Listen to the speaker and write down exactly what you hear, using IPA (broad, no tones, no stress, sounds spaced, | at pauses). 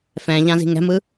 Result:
f ɛ̃ ʎ ã z i̤ ŋ ɛ̤ m ɯ